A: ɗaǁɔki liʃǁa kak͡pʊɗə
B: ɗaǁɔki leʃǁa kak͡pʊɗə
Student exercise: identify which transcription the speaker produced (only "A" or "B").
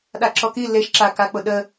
B